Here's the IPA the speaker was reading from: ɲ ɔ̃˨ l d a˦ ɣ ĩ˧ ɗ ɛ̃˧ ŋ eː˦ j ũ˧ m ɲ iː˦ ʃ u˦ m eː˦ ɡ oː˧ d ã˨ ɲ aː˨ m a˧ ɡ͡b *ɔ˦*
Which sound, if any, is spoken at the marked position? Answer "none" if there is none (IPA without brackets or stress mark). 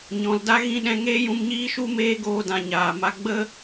ə˦